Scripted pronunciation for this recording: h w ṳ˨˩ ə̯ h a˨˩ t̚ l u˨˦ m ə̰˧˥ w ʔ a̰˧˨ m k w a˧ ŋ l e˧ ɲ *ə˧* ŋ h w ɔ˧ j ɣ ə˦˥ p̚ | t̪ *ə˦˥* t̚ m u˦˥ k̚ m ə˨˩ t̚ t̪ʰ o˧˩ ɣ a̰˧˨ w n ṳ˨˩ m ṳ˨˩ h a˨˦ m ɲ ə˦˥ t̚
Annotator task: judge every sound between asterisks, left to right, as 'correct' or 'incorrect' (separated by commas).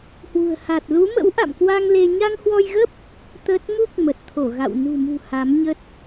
incorrect, correct